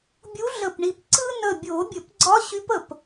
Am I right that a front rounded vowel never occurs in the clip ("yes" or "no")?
no